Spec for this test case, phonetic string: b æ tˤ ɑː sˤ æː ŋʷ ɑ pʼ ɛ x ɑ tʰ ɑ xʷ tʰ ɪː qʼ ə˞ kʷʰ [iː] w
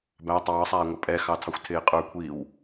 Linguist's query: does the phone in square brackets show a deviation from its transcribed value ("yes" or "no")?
no